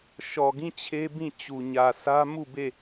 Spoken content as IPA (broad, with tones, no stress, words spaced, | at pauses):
ʃɔ˨ɡĩ˦˨ t͡ɕʰe˦bĩ˦˨t͡ɕu˨ ɲä˨sʰä˦ mu˦˨be˦˨